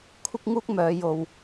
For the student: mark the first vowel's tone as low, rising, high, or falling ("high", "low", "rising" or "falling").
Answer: high